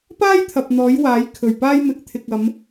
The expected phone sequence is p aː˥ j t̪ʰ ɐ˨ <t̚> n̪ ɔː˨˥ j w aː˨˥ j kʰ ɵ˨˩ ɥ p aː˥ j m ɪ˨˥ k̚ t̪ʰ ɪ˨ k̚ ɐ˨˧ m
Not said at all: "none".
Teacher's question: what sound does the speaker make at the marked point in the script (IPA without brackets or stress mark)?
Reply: p̚